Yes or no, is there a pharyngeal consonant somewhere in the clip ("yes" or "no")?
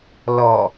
no